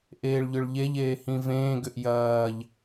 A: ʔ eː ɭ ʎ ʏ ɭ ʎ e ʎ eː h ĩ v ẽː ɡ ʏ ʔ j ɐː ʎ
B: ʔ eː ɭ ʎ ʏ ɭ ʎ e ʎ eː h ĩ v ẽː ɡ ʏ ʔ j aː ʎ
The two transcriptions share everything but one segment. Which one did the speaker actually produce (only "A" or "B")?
A